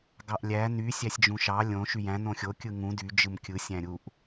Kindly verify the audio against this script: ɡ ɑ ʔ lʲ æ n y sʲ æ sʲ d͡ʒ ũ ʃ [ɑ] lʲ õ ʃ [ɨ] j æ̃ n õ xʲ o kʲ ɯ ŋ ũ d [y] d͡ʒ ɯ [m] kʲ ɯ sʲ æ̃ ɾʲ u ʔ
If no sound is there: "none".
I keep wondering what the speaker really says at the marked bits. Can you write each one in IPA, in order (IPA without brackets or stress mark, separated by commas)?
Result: ɑ, y, y, m